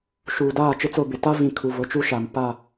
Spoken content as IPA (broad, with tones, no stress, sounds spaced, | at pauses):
ʃ uː˨ d aː˦˨ t͡ʃ ɪ˦ t͡s o˦˨ b ɪ˨ t a˦ v ĩ˨ kʰ u˨ v ʊ˨˦ t͡ʃ u˦ ʃ a˨ m p a˦˨